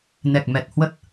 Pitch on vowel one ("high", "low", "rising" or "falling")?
low